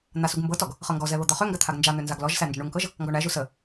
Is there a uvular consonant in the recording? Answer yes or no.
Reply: yes